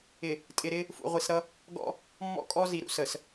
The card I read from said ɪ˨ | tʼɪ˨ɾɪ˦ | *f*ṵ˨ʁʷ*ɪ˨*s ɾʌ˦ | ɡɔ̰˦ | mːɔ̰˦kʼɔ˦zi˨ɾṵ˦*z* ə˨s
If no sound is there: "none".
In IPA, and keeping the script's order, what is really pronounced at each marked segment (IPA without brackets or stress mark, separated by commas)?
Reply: f, i˨, s